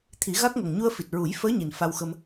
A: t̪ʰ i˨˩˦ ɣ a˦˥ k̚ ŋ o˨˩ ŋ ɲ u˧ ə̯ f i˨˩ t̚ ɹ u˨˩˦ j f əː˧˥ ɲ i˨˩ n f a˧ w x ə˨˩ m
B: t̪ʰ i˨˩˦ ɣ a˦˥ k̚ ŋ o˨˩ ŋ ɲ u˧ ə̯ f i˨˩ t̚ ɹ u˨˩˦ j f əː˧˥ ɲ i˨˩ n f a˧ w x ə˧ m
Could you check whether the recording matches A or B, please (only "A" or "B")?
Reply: B